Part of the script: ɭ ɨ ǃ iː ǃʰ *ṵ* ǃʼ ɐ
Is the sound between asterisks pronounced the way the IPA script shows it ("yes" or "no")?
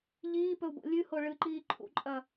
yes